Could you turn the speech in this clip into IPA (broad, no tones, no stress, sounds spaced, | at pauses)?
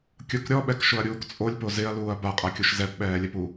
kʲ ʊ k ɾʲ ɔ ɓ ɛ k ʃ ʊ ɐ̯ ɾʲ uː k t͡sʼ o lʲ p o z ɪ ɐ̯ l uː ɐ̯ b a qʼ a kʲ o ʃ z ɛ p ɓ ɛː lʲ ɛ p u